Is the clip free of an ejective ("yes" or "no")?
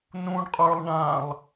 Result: no